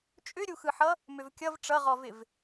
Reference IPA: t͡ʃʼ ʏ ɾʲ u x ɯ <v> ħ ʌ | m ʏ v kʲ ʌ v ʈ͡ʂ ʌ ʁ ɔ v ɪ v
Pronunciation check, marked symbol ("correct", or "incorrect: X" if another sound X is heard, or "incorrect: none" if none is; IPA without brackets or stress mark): incorrect: none